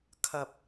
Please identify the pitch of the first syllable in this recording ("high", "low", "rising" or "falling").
high